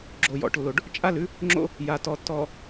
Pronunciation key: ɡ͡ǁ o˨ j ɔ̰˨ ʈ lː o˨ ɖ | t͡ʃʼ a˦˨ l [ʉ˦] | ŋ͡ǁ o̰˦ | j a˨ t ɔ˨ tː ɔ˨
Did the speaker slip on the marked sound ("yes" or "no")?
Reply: no